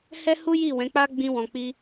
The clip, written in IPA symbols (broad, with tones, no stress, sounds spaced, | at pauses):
h ɛ˦ h u˦ j i˦˨ w ɛ̃˨˦ k͡p a˦ ɡ͡b ĩ˧ w ɔ̃˨ k͡p i˧